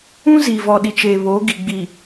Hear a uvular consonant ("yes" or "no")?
no